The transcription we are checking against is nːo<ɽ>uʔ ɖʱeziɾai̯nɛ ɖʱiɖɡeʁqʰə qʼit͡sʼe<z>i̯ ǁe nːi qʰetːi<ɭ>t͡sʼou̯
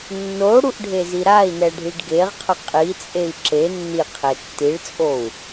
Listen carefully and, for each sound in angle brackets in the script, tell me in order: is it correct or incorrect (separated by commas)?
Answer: correct, incorrect, correct